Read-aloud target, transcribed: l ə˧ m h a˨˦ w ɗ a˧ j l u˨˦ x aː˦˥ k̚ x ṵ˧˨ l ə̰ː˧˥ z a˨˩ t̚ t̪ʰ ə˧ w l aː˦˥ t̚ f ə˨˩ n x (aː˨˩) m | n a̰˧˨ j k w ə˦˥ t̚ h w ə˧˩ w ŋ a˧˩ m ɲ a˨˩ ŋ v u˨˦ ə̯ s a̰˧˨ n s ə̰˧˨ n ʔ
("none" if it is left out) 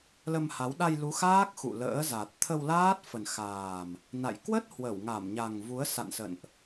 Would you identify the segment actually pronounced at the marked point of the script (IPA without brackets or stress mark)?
aː˨˩